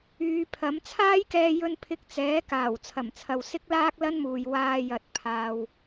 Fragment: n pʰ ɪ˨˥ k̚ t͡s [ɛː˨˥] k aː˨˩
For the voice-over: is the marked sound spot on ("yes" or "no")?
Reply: yes